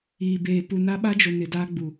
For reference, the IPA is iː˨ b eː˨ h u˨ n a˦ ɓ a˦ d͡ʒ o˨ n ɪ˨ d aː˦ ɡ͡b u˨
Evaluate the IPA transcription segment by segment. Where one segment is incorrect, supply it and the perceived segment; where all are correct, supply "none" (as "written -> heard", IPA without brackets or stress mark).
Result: h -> p